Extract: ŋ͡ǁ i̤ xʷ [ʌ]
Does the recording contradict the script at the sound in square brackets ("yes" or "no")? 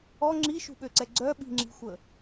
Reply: yes